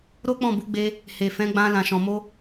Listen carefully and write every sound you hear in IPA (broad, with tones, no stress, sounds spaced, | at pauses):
ɾ o˦ k͡p ɔ̃˦˨ b u˨˦ ɡ͡b e˧ | h e˨ f ɛ̃˨˦ ɡ͡b ã˧ l ã˨ ʃ ɔ̃˨ m o˧